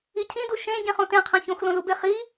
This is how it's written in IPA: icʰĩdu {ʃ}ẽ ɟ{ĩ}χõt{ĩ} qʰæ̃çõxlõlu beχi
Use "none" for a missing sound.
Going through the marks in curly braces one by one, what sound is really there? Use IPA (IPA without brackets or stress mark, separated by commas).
ʃ, ẽ, ẽ